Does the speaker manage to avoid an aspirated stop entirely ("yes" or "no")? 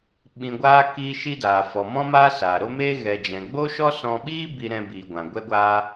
yes